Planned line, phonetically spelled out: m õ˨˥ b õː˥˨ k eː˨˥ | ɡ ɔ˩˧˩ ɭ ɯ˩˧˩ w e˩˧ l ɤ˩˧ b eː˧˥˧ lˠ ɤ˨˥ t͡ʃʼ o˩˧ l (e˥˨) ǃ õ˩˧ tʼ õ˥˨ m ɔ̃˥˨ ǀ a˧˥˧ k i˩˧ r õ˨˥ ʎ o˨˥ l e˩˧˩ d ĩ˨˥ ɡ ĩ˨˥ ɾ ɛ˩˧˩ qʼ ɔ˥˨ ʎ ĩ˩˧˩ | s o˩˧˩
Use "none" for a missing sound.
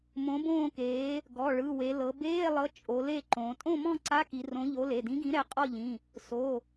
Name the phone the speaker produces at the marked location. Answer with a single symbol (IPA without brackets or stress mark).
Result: e˥˨